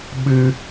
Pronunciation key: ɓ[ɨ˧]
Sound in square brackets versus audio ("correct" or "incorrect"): correct